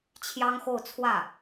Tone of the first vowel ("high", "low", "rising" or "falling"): high